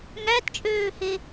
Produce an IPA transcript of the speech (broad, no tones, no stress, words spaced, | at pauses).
ŋætt͡ʃʼøːhe